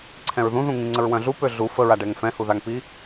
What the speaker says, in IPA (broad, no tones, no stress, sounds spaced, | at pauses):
ǀʰ ɛ̃ ɹ ð ũ ð ũ ŋ ĩ ŋ͡ǀ ə ɹ w œ̃ ɮ u p ø ɮ u f ə ɹ a ɖ ɛ ŋ f ɛ̃ h u ð a ŋ p i